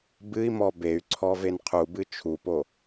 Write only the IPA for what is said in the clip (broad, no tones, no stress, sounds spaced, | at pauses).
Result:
b ɨ i̯ m ɔ b e y̯ ǀʰ ɔ v e n qʰ u b ɨ t͡ʃʰ u p o